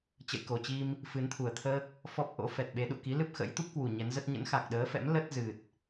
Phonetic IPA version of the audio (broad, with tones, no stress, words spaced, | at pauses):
t͡ɕə̰˧˨jko˨˩t͡ɕi˧m | fɨ˨˦nt̪ʰu˨˩ə̯t̪ʰəː˦˥k̚ | fɔ˦˥p̚ʔo̰˧˥ fɛ˨˩t̚ɓe˨˦ ɗṵ˧˨ki˨˦ lɨ˦˥p̚xə̰˧˥jt̪u˦˥p̚kwu˨˩ ɲɛ˨˦nzə˦˥t̚ ɲə̰˧˥nxa˨˩k̚ɗəː˨˦fɛ̰˧˥m lə˦˥t̚zɨ˨˩t̚